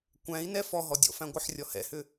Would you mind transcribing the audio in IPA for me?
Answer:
kʷ æ̃ i̯ n ɛ f ɔ ɦ ɔ dʲ ɔ̰ f æ̃ ɡʷ ɪ ħ rʲ ɔ h ɛ̰ h ʏ

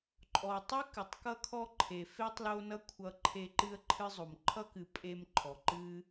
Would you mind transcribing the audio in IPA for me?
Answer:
ǃʼ ɔ˨ tˤ ɨ˥ k ɨ˩ tˤ k ʌ˥ kʰ ɔ˥ ǃʰ e˩ f e˥ tˤ l o˦ n ʌ˥ kʷʰ ʌ˦ ǃʰ e˦ ǃ ɨ˥ ə̯ ǃʰ ɨ˥ zˤ o˩ m ǃʰ ʌ˥ k ɨ˨ pʼ e˦ m ǃʰ ɔ˩ ǃ ɨ˦

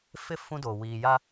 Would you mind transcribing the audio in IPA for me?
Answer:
f ɪ˦ f ũ˦ d oː˨ w iː˨ j a˦

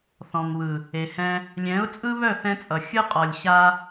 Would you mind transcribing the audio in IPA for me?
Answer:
θ ɔ̃˨ ŋ β ɯ˨ | e˨ h ɛ̃˧ | lʲ ɛ̃˨˦ ʊ̯ t͡sʼ ɯ˦ β œ˦˨ θ ɛ̃˧ t͡sʼ ʌ˨ xʲ ɯ˧ qʼ ɔ˨ lʲ ɕ a˧

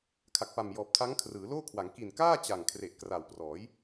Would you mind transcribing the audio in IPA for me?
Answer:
kʰ a˨˩ k̚ p a˨˩ m j ɔː˨˩ p̚ tʰ a˦˥ ŋ kʰ r ɯː˩˦ l oː˥˩ kʰ w a˩˦ ŋ k i˨˩ n k aː˥˩ t͡ɕ a˨˩ ŋ kʰ r e˨˩ ʔ k r a˨˩ w p r ɔː˩˦ j

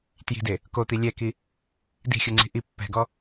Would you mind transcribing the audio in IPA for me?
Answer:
t j i̤ d e | k o t̪ i lʲ ɛ k i | d i̤ xʲ u ŋ͡ǀ i̤ ʔ i pː ɛ̤ ɡ ɔ

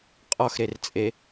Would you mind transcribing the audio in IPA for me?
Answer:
qʼ ɔ x ɾ e r t͡sʼ e

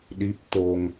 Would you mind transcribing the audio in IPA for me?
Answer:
ɗ i˦˥ p̚ t̪ o˧ ŋ

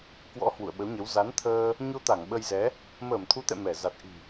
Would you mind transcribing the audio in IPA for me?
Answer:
k w ɔ̰˧˥ h w ṵ˧˨ ə̯ ɓ ə˨˦ w ɲ ə˨˦ w z a˨˦ n t̪ʰ əː˧ | ɲ o˧ t̪ a˧˩ ŋ ɓ ə˧ j z ɛ˨˦ | m əː˧˩ m t̪ʰ u˨˦ t̪ ɛ̰˧˨ m ɛ˧˩ z a˨˩ t̚ ʔ i̤˨˩

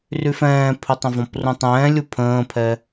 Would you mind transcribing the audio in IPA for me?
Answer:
r y f ɛ̃ː pʰ ə tˤ ə̃ v ɔ̃ p r ũ tˤ ɛ̃ː lʲ u pʰ ə̃ː pʰ ɛ

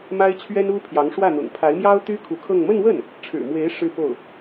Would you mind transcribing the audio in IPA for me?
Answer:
m a˥ ɪ̯ t͡ɕʰ ɥ ɛ˥ n u˥ pʰ j ɑ˧˥ ŋ ʂ w ä˥˩ n̪ ʊ̰˨˩ ŋ pʰ a˧˥ ɪ̯ m j ɑ˥ ʊ̯ t̪ y˥ kʰ u˧˥ kʰ ɤ˥˧ ŋ m ə˥˧ n w ə˥˩ n | ʈ͡ʂʰ ɻ̩˨˩ m w e˧˥ ɪ̯ ʂ ɻ̩˥˧ p o˥˩ ʊ̯

